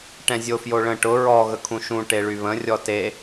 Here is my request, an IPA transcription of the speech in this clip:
ʈ ɛ̃ zʲ o f j o ɭ ə̃ ʈ ʊ ɹ ɔ ɣ ə kʰ ũ ʃ ũ ʈ e ɭ y β ə̃ rʲ ɔ t e

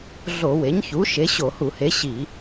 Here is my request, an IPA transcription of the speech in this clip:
ɮ o˧˩˧ w e˩˥ ɲ ç u˩˥ ʃ e˩˥ ɕ o˧˩˧ h u˧˩˧ h e˩˥ ɕ i˧˩˧

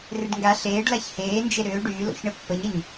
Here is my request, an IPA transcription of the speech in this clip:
r ɪ ɖ ŋ ɡ a ɬ eː ɖ l a ç h eː n d͡ʒ e ɾ ʏː ɖ yː l o̰ ç ɳ ə pː ə ɲ ə ɲ

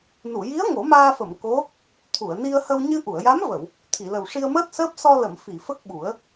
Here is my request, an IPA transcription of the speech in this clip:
n u˨˩˨ j i˧˥ ə̯ ŋ o˨˩˦ m aː˧ f ə˨˩˨ m k o˧˥ | t̪ʰ u˨˩˨ ə̯ n i˧ ə̯ h ə˧ w ɲ ɨ˧ ʔ u˨˩˨ ə̯ j a˧˥ m v ə˨˩˨ w | t̪ʰ i˨˩˨ l ə˨˩ w ʂ i˧ ə̯ m əː˦˥ t̚ s əː˦˥ p̚ s ɔ˧ l ə˨˩˨ m f i˨˩˨ f ə˦˥ k̚ ɓ u˨˩˦ ə̯

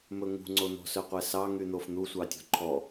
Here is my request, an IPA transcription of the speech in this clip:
m ɵ ŋ ṳ ŋ͡ǀ o n̪ ɔ̤ s œ qʷ ɛ s ɑ ŋ y n̪ o f n̪ u sʷ ɑ tʲ ɔ̤ ǃʰ ɔ

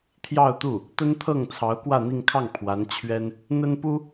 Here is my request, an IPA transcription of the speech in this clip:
t̪ʰ j ɑ˥˧ ʊ̯ t̪ u˥˩ | t̪ ə˥ n t̪ʰ ɤ˥˩ ŋ t͡sʰ ɑ˧˥ ʊ̯ k w ä˥˧ n̪ i˥˧ ŋ kʰ ɑ˥˩ ŋ pʰ w a˧˥ n t͡ɕʰ ɥ ɛ˥ n | n̪ ə˥ n p u˥

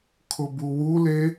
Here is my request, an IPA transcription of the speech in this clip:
kʰ ʊ b u w u l e

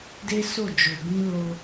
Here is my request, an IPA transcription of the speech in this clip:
d e˦ s o˦˨ d͡ʒ o˨ b ĩ˧ l o˧

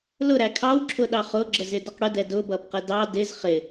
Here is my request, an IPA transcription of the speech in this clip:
l ʊ ɾ æ kʰ ɑ w ǁʰ ʊ ɗ ɑ χ ʊ ɡ͡ǁ ə z ɪ d ʌ q ɽ ʊ d ɛ d ʊ b ʌ b q ə d ɑ d ɪ z χ ɪ

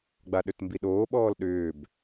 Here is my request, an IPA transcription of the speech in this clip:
ɡ͡b a ɗ ʏ t m b i ɗ oː ɓ ɔː l ɗ ʏː b

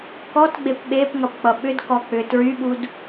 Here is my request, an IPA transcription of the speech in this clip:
k ɔ t ɡ͡b e p ɓ e p ŋ ʌ p k͡p ʌ ɓ ʏ d k ɔ k͡p ʏ t ɹ y ɓ u d

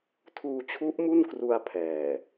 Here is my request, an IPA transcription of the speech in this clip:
tʰ uː˧ t͡ɕʰ u˦˥ ʔ m u˥˩ n k r u˧ a̯ pʰ ɛː˨˩

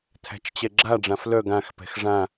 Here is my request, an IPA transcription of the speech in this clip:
tʰ æ̤ t͡ʃ t͡ɕ ɛ ɡ͡ǁ a ɖ͡ʐ ã f l œ ɡ ã x p ɛ̤ x ʐ ã

